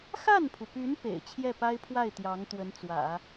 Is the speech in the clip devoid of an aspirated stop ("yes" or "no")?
no